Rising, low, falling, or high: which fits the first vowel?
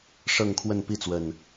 falling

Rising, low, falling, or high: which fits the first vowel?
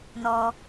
high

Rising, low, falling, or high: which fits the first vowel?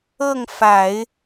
falling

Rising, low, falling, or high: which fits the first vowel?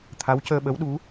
rising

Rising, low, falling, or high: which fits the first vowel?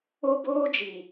high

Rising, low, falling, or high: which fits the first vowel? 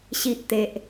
low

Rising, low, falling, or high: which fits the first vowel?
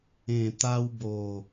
low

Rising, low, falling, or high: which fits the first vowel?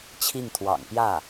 falling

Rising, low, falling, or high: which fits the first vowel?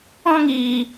high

